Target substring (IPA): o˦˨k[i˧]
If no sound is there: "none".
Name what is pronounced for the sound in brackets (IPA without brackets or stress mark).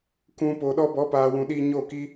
i˦